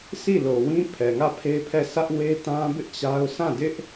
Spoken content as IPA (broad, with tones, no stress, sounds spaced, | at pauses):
sʰ i˦˨ l o˨ w ĩ˦ pʰ ɛ˨ ŋ ä˦˨ pʰ e˦ pʰ ɛ˦˨ sʰ ä˦ ʔ w e˦ t ã˦ b ɪ˦ ʔ t͡ɕ a˦ ʊ̯ sʰ ã˦˨ d ɪ˦ ʔ